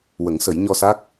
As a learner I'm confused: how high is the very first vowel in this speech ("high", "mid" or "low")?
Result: mid